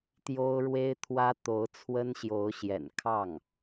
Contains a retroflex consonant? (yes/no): yes